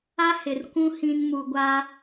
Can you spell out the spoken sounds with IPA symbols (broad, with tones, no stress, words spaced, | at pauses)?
a˦ hɪ˨r kʷũ˦ hĩ˦n mu˨ɡʷa˦